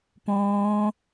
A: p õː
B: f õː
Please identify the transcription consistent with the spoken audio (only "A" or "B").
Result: A